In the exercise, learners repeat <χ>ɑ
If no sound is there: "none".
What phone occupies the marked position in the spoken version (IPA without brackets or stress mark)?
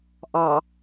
ʔ